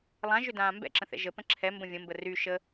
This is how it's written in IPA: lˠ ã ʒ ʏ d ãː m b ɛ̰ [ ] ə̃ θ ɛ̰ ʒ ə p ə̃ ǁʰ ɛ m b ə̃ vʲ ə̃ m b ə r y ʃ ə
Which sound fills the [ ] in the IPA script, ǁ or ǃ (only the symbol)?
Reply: ǁ